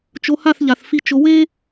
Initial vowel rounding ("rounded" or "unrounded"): rounded